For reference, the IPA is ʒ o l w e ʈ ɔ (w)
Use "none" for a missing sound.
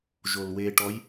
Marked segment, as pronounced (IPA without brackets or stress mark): j